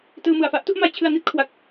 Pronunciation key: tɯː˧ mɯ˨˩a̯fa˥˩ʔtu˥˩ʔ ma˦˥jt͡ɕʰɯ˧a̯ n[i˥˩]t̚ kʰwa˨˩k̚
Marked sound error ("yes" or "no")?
no